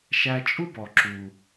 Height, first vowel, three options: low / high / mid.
low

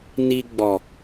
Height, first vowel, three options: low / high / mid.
high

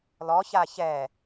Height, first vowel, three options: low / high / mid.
mid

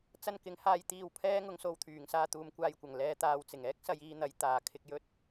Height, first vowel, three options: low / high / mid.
low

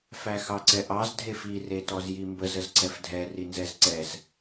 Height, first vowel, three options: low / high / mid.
low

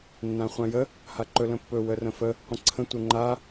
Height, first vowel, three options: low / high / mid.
low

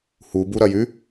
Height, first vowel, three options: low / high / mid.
high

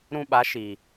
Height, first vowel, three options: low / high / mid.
high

